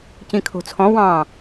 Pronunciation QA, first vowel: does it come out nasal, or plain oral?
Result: nasal